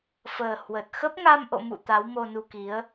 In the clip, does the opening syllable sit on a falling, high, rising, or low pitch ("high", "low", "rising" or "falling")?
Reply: low